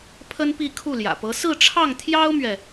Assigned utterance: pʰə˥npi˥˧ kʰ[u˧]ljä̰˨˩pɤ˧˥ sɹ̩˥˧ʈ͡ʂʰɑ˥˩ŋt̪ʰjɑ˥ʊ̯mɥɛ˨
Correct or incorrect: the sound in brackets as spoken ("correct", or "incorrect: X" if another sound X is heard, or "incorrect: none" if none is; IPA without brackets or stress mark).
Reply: incorrect: u˥˩